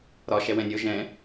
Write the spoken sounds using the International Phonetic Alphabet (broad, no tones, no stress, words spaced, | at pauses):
ɾɒ ʃɛwɛ̃nʲo ʒɛ̃